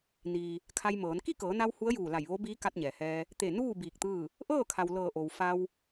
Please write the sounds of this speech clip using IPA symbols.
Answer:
n iː˩ | kʰ a˧ j m ɤː˩˧ n k i˥˨ k ɤː˩˧ n a˧ w h u˧˥ ə̯ j uː˧˩ l a˧˩ j ʋ o˧˥ b iː˧˥ k a˧ t̚ ɲ ɛː˩ h ɛː˧ | t̪ e˧˩ n uː˥˨ b iː˧˩ k̚ t̪ ɯː˥˨ | ʔ ɤː˥˨ kʰ a˩ w l ɤː˧˩ ʔ o˩ w f a˧ w

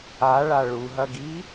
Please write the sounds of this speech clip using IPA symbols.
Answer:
a ɭ a ɭ u ɦ ɐ ɡ i

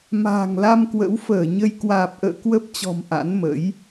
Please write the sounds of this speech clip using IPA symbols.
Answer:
m a̤ː˨˩ ŋ l a˧ m k w ə̰˧˥ w f əː˧˩ ɲ ə˧ j k w aː˨˩ p̚ ʔ ə̰ː˧˨ k w ə˦˥ p̚ t͡ɕ ɔ̤˨˩ m ʔ a̰˧˥ n m ə̰˧˥ j

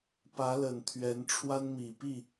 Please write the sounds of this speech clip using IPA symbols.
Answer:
p ä˧˥ l ə˨˩ n t̪ʰ ɥ ɛ˧˥ n ʈ͡ʂʰ w a˥ n m i˨˩ p i˥˩

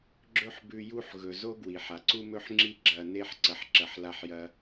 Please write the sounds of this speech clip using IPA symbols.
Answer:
ɡ͡ǁ ɵ˥ ħ b ʉ˧ j u˥ ħ ɣ ɵ˩ z o˥ ɡ w i˩ ħ a˩ ǀ u˥ m ɵ˥ ħ ŋ͡ǁ i˥ ɡ͡ǁ ɐ˧ n e˥ ħ ǀ ɐ˧ ħ ǁ ɐ˧ ħ l a˥ ħ j ɐ˥

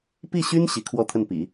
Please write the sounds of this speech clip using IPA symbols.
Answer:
p i˥˩ ɕ y˥ n ɕ i˧˥ kʰ w ɔ˥˧ t̪ʰ ə˥˩ n p ḭ˨˩˦

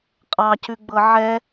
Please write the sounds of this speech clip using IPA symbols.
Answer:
qʼ ɑ c ʉ ɡ͡b ɤ ʕ ɛ

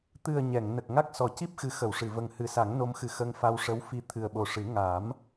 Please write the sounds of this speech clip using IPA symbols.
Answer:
t̪ ɨ˨˩ ə̯ ɲ ɛ˨˩˨ ŋ n ə˨˩ k̚ ŋ a˦˥ k̚ s ɔ˨˩˨ c i˦˥ p̚ x ɨ˨˩˦ x ə˨˩˨ w ʂ ɨ˨˩˨ v ə˨˩ ŋ h ɨ˨˩˦ s a˨˩˦ ŋ n o˧ m x ɨ˨˩ x ə˧ ŋ f a˧ w ʂ ə˧˥ w f i˧ t̪ʰ ɨ˨˩ ə̯ ɓ o˨˩ ʂ ɨ˨˩˦ ŋ a˨˩˦ m

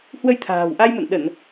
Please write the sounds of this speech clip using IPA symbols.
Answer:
h w ə˧ j t̪ʰ a̤ː˨˩ w ʔ a˧ j m ə̰˧˨ n ɗ ə˧˩˨ n

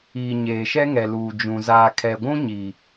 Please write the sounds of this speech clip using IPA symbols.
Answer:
iː˨ ɲ eː˨ ʃ ɛ˦ ŋ ɛ˨ l uː˨ d͡ʒ ũ˨ z aː˨ kʰ ɛ˨ ɡʷ ũ˦ ɲ iː˨

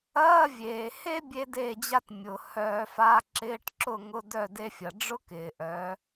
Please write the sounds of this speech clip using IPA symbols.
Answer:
ɐː˧˥˧ vʲ eː˩ h e˥ bʲ e˥ d eː˥˩ d͡ʑ a˥ t mʲ ʊː˩ h œː˧˩˧ f a˧˥˧ ǁ ɪː˧˥˧ ʈ ǁ ʊ˥˩ ŋ ʊ˧˥˧ d œ˥˩ d e˥ fʲ ɐ˩ ɖ͡ʐ ʊ˥ k ɪː˩ ʔ œː˩˥

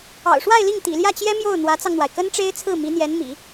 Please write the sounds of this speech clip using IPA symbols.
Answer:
ɑ̰˨˩ ʊ̯ ʂ w a˥˧ ɪ̯ l i˥˩ ŋ t̪ ḭ˨˩ l j ä˥˩ t͡ɕ j ɛ˥ m j o˥˩ ʊ̯ n̪ w ä˧˥ t͡s ɑ˧ ŋ n̪ w a˩ ɪ̯ k ə˥ n ʈ͡ʂ e˥ ɪ̯ t͡sʰ ɹ̩˥˩ m i˧˥ n̪ j ɛ˧˥ n m ḭ˨˩˦

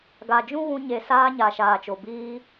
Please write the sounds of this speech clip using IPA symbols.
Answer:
ɡ a˨ d͡ʒ ũ˦ ɣ ũ˧ ɲ e˨ s aː˧ ɲ aː˨ ʃ aː˨ t͡ʃ o˨ b iː˧

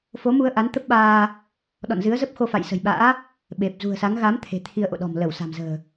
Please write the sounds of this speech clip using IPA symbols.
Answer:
f o˨˦ m u˧ ə̯ ʔ a˨˦ n t̪ ə˦˥ p̚ ɓ aː˧ | ɗ ɔ̰˧˨ n z ɨ˨˦ ə̯ z ə˦˥ p̚ x o˧ f a̰˧˨ j s ə̤˨˩ j ɓ a̰ː˧˥ | ɓ e˨˩ p̚ z ṳ˨˩ ə̯ s a˨˦ ŋ ɣ a˨˦ m t̪ʰ e̤˨˩ t̪ʰ i˧ ə̯ ʔ o̰˧˨ ɗ ɔ̤˨˩ m l ə˧˩ w s a̤˨˩ m z ə̤ː˨˩

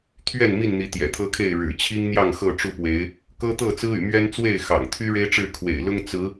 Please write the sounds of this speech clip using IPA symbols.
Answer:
t̪ʰ ɥ ɛ˥˨ n m i˥˨ n n̪ i˨˦ t̪ j ɛ̰˨˩ t̪ʰ ɤ˦ kʰ e˥˨ ɪ̯ ɻ ɻ̩˨˩ t͡ɕʰ i˦ ŋ n̪ j ɑ˥˨ ŋ x ɤ˥˨ ʈ͡ʂ u˥˨ p w e˨˦ ɪ̯ | k ɤ˦ t̪ ɤ˥˨ t͡s ɹ̩˦ y̰˨˩ m ɥ ɛ˦ n t͡s w e˥˨ ɪ̯ x ɑ̰˨˩ ŋ t̪ʰ y˦ ɻ e˦ ɪ̯ ʈ͡ʂ ɻ̩˥˨ kʰ w ḛ˨˩ ɪ̯ l ʊ˦ ŋ t͡s ɹ̩˨˦

